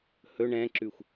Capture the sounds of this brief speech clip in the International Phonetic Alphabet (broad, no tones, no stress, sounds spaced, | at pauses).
h ɵ ɳ ɛ̃ ǁ ʉ xʷ